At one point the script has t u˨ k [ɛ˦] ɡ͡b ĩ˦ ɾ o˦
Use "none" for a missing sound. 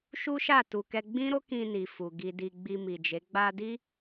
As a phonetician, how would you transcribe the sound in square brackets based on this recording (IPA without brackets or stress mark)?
ɛ˧